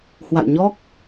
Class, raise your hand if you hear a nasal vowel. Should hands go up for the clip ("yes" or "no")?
no